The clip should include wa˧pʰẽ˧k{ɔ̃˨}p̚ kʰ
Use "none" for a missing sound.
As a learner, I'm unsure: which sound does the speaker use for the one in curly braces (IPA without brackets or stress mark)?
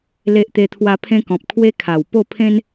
ɔ̃˨